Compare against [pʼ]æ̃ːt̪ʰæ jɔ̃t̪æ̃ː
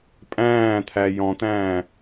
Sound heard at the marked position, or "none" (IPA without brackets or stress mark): pʼ